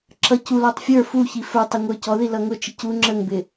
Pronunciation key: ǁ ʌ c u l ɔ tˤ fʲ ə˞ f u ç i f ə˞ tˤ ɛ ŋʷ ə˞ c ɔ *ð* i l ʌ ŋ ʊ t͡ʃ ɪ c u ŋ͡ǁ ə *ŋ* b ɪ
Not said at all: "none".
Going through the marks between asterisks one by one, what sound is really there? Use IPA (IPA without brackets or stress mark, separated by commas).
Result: ð, ŋ